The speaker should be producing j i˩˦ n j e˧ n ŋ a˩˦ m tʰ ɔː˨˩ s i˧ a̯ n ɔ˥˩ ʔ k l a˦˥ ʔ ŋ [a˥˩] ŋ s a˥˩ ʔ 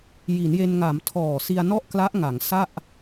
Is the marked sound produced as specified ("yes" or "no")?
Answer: no